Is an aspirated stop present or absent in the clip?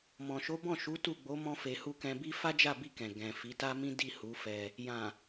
absent